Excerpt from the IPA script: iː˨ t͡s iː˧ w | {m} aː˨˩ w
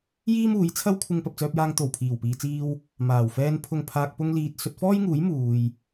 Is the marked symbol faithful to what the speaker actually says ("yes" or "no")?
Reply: yes